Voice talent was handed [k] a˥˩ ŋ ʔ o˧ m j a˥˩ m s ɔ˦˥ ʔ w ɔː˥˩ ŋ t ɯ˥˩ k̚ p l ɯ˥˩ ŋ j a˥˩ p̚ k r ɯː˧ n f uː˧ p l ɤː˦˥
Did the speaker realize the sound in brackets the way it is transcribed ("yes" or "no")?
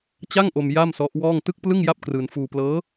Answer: no